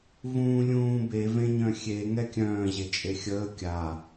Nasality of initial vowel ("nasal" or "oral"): nasal